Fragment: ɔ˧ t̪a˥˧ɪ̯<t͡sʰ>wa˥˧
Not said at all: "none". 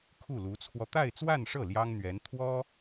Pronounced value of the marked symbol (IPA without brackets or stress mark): t͡s